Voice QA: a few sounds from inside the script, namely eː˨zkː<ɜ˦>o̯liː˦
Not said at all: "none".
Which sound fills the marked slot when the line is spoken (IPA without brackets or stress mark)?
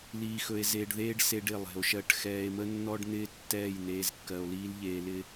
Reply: ɜ˨